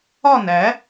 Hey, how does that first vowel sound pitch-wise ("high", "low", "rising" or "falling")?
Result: falling